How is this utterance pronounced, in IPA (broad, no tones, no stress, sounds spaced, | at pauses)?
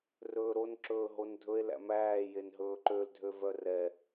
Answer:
r ɵː ɾ o n ǁ ɵː ɦ o n dʱ ɵ e̯ l æ̰ m æː j e n ɦ ɵː ǃ ø l dʱ ø v œ r ɛ